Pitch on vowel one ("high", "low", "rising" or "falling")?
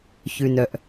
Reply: low